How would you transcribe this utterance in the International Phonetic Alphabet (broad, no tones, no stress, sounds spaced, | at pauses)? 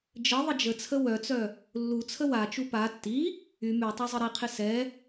d͡ʒ ə ðˤ ə d͡ʒ ə t͡sʰ ə w œ t͡s œ | lː u t͡sʰ ə w a t͡ʃ u p a tː i | y m y tˤ i zˤ ə ɾ i qʰ ɪ s ɛ